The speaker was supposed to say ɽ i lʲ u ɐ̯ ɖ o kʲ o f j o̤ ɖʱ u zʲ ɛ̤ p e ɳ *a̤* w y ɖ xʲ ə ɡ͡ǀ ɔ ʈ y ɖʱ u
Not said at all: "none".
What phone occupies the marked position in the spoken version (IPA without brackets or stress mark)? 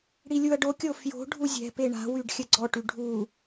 a̤